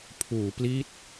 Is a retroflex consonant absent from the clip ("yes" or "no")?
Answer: yes